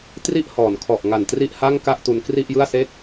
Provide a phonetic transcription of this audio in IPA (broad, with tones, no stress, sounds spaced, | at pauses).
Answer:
t r i˥˩ ʔ h ɔː˩˦ n kʰ ɔ˨˩ ʔ ŋ a˨˩ n t r i˥˩ ʔ h a˥˩ ŋ k a˥˩ ʔ t u˧ n k r i˥˩ ʔ j ɯ˥˩ a̯ s eː˥˩ k̚